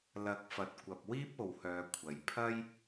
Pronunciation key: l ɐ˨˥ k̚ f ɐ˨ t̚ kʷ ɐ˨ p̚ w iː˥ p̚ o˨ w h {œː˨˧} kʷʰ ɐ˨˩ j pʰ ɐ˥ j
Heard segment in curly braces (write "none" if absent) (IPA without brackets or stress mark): œː˨˧